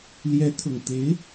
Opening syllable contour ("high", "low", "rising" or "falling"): rising